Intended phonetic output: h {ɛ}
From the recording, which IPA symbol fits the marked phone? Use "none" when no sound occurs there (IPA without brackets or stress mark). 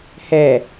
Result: ɛ